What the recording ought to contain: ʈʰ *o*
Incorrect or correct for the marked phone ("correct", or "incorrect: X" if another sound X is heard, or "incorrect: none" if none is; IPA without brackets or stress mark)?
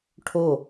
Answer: correct